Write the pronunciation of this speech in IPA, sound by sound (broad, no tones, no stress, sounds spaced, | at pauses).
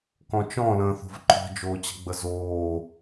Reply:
k ɔ̃ t͡ʃ ɔ̃ l ə̃ː θ o̤ v ǃ ɔ̤ d͡ʒ oː t͡ɕ ə̤ ɡ͡b ə z oː